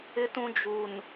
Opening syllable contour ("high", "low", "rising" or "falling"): low